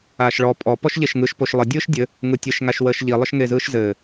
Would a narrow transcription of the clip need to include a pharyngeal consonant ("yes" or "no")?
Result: no